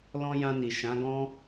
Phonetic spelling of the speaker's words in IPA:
l ɔ̃˧ j ã˧ n i˨ ʃ ã˨˦ ɡ ɔ̃˦

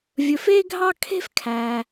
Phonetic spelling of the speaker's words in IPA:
vʲ ɵ˨ f e˦ ɡʱ ɑ˦ kʰ e̤˦ f kʰ æ˨

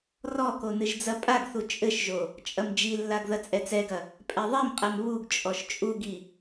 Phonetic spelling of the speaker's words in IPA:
r ɔ k o n ɨ ʒ d͡z ɐ pʼ a ɡ θ u t͡ʃʼ ɘ ʃ ʒ o | t͡ʃʼ ɐ m d͡ʒ i lː a ɡ ð ɐ t͡sʼ ɛ t͡s ɛ ɡ ɐ | pʼ ɛ ðˤ e m qʼ ɛ m β u ɡ t͡ʃʼ ɔ ʃ t͡ʃʼ u ɡ i

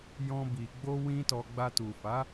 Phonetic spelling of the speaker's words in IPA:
j ɔ̃˦ b i˧ ɡ͡b o˦ w ĩ˦ t ɔ˧ ɡ͡b a˧ t u˨ f a˨˦

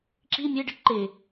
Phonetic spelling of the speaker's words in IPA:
ǁ i mʲ e ɖ i ʈ ǃ e

